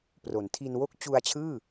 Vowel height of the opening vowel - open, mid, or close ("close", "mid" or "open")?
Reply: mid